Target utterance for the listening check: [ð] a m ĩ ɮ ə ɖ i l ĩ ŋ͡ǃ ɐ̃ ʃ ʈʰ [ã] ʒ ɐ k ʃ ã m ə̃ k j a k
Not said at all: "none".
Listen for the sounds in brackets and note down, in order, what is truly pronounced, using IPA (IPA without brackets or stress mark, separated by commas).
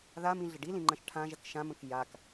ð, ã